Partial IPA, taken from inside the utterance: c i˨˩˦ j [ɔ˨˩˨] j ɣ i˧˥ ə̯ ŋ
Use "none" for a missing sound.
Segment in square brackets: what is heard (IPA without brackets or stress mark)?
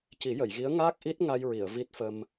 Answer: ə˨˩˨